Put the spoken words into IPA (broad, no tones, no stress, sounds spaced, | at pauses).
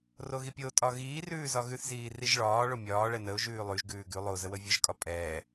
r o ɣ i pʲ o tʼ ɒ ɣ iː r ʉː z ɒ ɣ ʉ θ z iː r i ʒ ɭ ɒː ɭ o mʲ ɒː ɭ ɛ n ə ʊ̯ ʒ ʉː lˠ ʉ ʒ ɡ ʉː ɡ ʉ lˠ o z ə w ə vʲ ə ʒ kʼ ɒ pʼ ɛː